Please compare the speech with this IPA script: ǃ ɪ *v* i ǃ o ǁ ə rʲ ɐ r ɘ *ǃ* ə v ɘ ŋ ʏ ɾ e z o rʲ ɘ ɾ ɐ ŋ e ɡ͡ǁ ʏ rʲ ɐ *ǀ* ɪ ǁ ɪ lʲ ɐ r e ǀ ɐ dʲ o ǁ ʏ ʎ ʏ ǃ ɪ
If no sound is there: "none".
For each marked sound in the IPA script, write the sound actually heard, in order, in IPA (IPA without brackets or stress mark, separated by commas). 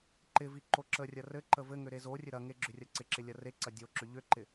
v, ǃ, ǀ